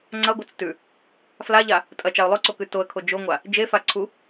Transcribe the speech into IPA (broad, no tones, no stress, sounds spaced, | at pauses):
ŋ͡ǀ ɐ ɡʷ ɐ t͡s t ʉ | f l a ʎ a | tʼ ɐ t͡ʃ a ʊ̯ lˠ o ǀ o k ʉ t o ə̯ kʰ o d͡ʒ o ŋʷ a | d͡ʒ e f a ǀʰ u